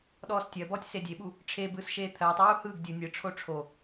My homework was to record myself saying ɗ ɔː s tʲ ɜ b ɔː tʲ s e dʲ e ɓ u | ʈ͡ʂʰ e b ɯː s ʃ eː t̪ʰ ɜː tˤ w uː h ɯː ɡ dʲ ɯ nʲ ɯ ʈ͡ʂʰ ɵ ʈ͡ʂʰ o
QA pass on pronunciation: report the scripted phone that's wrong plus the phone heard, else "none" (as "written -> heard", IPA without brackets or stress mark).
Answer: ɵ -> o